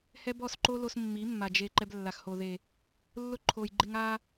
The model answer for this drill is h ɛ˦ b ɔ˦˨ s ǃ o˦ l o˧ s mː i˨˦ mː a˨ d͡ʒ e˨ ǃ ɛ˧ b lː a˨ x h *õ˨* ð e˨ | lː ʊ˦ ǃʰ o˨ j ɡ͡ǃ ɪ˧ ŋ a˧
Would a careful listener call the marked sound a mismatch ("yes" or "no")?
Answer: yes